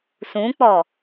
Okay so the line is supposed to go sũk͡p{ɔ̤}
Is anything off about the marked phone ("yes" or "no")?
yes